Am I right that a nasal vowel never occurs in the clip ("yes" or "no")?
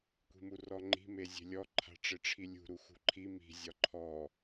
yes